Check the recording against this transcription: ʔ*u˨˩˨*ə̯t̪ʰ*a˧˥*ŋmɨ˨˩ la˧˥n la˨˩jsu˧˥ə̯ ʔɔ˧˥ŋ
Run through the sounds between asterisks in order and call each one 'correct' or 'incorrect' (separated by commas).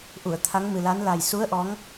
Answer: correct, correct